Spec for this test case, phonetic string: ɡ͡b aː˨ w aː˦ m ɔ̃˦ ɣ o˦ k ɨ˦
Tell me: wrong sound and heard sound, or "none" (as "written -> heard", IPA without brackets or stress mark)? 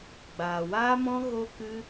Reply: none